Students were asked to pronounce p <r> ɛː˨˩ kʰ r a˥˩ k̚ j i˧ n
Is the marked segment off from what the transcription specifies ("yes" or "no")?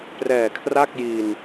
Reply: no